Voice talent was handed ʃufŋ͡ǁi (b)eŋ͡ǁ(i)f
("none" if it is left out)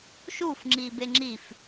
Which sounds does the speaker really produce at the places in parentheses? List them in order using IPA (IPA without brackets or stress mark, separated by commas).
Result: b, i